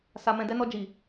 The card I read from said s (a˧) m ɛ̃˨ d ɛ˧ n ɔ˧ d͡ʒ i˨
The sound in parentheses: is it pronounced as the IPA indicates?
no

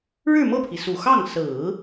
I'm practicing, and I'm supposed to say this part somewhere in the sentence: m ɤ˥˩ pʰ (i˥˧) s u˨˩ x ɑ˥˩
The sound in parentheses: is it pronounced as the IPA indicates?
no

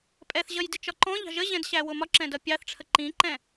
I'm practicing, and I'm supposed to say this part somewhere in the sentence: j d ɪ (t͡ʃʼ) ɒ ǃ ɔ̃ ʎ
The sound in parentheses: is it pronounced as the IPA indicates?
no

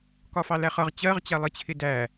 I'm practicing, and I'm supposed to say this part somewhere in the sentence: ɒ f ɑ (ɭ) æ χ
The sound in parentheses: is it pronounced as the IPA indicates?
no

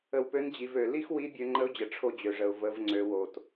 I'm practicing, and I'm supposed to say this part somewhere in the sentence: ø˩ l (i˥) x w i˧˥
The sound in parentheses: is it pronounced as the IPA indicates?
yes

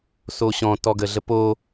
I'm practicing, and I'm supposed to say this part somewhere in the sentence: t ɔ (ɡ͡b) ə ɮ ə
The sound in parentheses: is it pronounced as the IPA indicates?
no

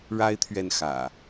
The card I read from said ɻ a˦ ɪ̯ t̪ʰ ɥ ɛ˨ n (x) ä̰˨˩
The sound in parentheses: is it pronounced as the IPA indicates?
yes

